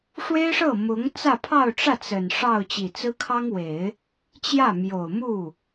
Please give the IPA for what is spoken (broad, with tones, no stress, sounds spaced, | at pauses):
ʂ w e˥ ɪ̯ ʂ ɤ˥˩ m ʊ˧˥ ŋ t͡s ä˥˧ pʰ ɑ˥˧ ʊ̯ ʈ͡ʂ ä˥˩ t͡s ə˨˩ n ʂ ɑ˥˩ ʊ̯ t͡ɕ i˨˩ t͡s ɹ̩˥ kʰ ɑ˥ ŋ w e˨˩˦ ɪ̯ | t͡ɕ j ä˥˩ m j o˨˩ ʊ̯ m u˥˩